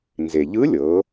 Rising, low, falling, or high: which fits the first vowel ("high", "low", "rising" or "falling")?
low